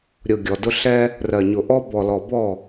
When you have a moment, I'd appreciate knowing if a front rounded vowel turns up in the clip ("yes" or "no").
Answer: no